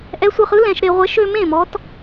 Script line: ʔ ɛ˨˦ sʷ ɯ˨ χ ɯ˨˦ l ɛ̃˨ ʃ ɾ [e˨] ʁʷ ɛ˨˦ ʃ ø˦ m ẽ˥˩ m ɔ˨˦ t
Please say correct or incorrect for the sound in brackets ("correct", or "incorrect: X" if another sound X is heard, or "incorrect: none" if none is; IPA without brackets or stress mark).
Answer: correct